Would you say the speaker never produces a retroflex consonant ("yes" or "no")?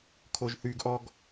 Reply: yes